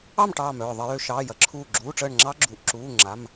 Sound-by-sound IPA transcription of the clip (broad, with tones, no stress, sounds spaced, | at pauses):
ɑ˥˨ m ʈ ɑː˧˩ m œː˧˩ ðˤ ə˧˩˧ j ø˩˧ ʃ ɑː˩˧˩ j ɐ˩˧˩ ǁʰ uː˧˩ ɡ͡ǁ uː˩˧˩ ʈ͡ʂ əː˧˩ ɳ ŋ͡ǁ ɑ˦˥ ɡ͡ǁ u˩˧˩ ʔ ǁ uː˩˧˩ ŋ͡ǁ a˩˧˩ m